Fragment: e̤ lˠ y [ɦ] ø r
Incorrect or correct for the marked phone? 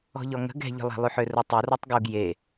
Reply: incorrect: ħ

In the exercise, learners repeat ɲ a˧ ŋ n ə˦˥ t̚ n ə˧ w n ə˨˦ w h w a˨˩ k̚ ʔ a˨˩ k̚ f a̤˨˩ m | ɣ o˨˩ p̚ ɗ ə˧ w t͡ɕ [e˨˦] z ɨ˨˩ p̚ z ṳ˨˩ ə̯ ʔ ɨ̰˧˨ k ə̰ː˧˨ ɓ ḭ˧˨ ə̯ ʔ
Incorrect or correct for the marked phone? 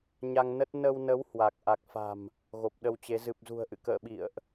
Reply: correct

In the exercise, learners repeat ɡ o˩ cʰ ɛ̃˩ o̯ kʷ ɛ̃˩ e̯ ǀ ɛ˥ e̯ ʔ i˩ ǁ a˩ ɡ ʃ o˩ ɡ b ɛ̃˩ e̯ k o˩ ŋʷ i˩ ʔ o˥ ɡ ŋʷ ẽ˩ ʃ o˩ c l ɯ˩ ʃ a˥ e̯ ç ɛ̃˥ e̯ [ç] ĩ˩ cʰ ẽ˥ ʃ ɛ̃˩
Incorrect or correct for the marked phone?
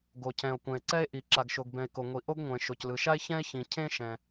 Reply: correct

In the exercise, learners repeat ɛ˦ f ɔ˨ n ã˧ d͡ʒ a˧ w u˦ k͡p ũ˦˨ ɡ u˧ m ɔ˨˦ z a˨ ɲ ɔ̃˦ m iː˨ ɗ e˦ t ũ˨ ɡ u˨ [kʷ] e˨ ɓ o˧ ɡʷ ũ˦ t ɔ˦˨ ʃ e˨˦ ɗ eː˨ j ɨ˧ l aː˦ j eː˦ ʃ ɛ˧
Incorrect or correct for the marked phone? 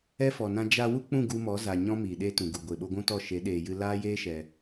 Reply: incorrect: ɡʷ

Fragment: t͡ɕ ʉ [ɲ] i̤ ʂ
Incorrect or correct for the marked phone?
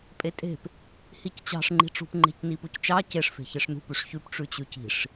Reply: incorrect: c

